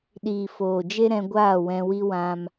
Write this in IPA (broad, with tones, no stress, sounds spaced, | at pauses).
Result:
ɗ iː˨ f oː˨ d͡ʒ e˦ ɾ ɛ̃˧ ɡʷ aː˦˨ w ɛ̃˧ w i˦ w ã˧ m